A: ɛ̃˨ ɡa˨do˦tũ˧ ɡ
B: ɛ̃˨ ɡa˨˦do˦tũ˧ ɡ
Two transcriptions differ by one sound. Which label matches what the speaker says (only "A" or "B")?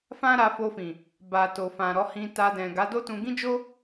B